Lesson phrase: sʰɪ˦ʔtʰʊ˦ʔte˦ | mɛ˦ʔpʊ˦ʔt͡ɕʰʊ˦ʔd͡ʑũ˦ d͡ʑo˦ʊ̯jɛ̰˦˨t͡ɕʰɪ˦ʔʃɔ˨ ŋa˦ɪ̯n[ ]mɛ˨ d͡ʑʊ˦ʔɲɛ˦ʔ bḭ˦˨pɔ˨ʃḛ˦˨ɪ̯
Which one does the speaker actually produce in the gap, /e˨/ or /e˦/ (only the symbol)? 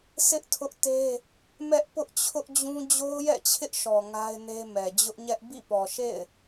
e˦